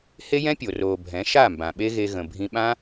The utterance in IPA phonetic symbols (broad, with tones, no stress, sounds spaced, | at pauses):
h e˦ j ɛ̃˦ pʲ o˨ r oː˨ bʱ ɛ̃˨˦ ʃ a˦˨ m b ã˨ ɓ e˦ ɣ e˧ ɣ ə̃˨ bʱ ĩ˧ ɓ ã˦